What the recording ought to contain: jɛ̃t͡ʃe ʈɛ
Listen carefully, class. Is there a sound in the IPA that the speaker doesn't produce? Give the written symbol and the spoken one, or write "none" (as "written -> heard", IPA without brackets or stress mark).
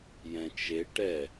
none